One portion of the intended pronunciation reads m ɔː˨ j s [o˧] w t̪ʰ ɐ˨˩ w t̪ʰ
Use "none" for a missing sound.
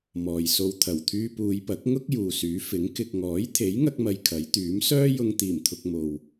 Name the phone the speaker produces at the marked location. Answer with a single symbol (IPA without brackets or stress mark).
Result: o˧